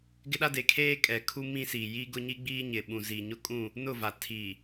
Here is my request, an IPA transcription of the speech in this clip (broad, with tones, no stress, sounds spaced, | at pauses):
ɡ ɪ˦ ɗ a˦ d e˨ kʰ eː˦ kʼ ɛ˨ kʰ u˦ m ĩ˦ s iː˨ j i˦ ɡ ʊ˦ ɲ i˦ ɡ͡b iː˦ ɲ ɪ˨ ɓ ũ˨ z i˨ ɲ ʊ˦ kʼ ũ˦˨ | n ʊ˦˨ v a˨ tʰ iː˨